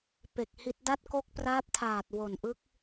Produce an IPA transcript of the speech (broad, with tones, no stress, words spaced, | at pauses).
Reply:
pe˨˩k̚hi˦˥t̚ da˦˥t̚ko˦˥k̚praː˦˥p̚tʰaː˨˩t̚ wo˨˩nʔɯ˦˥k̚